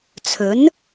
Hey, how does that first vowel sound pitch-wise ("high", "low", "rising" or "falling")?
rising